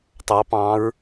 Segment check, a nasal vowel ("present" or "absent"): present